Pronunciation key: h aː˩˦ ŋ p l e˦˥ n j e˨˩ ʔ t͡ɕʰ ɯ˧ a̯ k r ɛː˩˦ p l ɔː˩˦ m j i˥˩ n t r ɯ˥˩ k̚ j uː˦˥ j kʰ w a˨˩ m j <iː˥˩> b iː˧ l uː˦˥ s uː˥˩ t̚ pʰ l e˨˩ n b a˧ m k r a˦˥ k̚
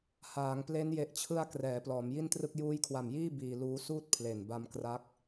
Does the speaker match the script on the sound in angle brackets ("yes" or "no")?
yes